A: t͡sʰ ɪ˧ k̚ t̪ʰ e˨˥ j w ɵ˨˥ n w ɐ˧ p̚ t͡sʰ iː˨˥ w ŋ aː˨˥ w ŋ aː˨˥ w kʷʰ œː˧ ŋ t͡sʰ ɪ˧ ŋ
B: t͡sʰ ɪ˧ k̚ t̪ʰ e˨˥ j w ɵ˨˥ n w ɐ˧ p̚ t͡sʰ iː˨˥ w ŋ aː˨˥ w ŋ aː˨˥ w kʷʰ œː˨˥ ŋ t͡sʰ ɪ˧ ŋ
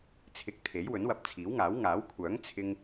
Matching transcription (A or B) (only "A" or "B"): B